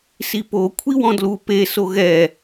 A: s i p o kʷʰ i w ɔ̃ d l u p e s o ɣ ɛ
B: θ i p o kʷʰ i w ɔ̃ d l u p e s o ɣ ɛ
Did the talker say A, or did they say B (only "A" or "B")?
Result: A